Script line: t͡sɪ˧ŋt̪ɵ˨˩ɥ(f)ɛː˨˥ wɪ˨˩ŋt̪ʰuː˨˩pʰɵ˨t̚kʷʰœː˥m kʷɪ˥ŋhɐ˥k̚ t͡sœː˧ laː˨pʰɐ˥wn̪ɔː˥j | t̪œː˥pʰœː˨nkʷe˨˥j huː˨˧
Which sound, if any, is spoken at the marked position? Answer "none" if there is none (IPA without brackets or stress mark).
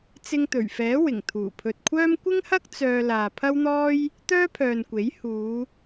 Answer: f